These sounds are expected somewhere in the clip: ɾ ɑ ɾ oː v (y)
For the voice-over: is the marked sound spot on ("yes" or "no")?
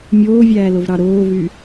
yes